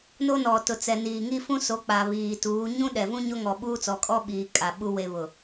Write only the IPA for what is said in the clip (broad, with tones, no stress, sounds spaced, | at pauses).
n o˦ n ɔ˨ t ʊ˨ t͡s ɛ˨ n iː˨ ŋ i˦ f ũ˦ s o˨˦ k͡p a˨ β iː˨ t uː˨˦ ɲ ũ˦ ɗ ɛ˨ v ũ˦ ɲ o˦ ŋ ɔ˨ ɓ uː˦ t͡s ɔ˨ kʼ ɔ˦ ɓ iː˨ kʼ a˨ ɓ u˦ w e˨ β ʊ˨